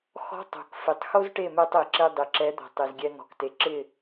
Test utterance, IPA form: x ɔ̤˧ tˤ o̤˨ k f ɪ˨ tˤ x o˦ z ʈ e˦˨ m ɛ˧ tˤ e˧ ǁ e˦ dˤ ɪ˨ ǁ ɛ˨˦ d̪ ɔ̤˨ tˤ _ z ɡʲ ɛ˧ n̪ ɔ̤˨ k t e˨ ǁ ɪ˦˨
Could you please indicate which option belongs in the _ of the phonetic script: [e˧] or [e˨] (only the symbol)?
e˨